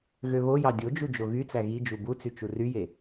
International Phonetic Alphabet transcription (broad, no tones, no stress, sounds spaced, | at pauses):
ɣ ø β o j ɑ dʲ o d͡ʒ u d͡ʒ o ɣ y t͡s æ ɣ i d͡ʒ u b u t͡s y t͡ʃ u r y j e